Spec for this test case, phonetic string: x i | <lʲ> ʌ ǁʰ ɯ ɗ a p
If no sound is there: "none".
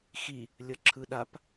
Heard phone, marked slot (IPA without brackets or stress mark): lʲ